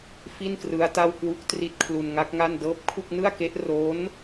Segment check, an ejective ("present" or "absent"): absent